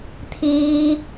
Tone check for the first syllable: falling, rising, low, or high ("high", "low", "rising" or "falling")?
high